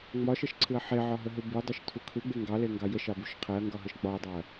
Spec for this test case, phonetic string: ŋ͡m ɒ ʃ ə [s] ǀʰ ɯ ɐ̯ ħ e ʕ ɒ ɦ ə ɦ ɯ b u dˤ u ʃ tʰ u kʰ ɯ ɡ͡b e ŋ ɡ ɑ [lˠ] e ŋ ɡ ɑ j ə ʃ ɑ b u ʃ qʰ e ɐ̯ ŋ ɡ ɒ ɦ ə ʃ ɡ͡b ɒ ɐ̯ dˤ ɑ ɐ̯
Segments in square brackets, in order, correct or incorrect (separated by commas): incorrect, incorrect